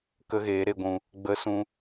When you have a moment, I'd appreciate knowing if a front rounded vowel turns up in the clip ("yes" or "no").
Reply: no